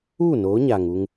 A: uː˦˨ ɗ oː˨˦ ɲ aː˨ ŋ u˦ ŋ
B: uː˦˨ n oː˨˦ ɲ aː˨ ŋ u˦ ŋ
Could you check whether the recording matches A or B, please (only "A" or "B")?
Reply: B